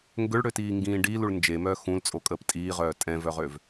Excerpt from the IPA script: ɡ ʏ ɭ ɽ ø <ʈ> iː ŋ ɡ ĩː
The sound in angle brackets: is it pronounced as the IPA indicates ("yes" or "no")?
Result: no